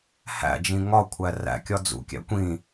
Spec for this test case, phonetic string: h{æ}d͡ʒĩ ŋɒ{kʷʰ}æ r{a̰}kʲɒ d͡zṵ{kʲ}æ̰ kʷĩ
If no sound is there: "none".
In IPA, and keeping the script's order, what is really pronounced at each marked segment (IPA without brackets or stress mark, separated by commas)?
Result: æ̰, kʷʰ, æ̰, kʲ